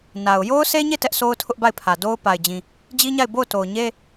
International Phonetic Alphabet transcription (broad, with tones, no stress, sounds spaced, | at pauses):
n a˨ ʊ̯ j o˦ ʊ̯ s e˦ ɲ e˦˨ t ɛ˦ ʔ s o˦ ʊ̯ tʰ ʊ˦ ʔ b a˦˨ ɪ̯ pʰ ä˨ d o˦ ʊ̯ p a˨ ɪ̯ d͡ʑ ĩ˨ | d͡ʑ i˦ ɲ a˦˨ ɪ̯ b o˦˨ ʊ̯ t o˨ ʊ̯ ɲ e˦